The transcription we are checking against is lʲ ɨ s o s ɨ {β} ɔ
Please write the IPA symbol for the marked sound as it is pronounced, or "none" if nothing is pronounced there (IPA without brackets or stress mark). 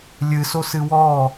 w